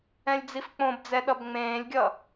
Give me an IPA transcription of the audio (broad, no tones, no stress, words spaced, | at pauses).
ɛ̃lʲd͡zifk͡põbd͡zɛ ɗʌbŋ͡mẽːlʲɡʲʌ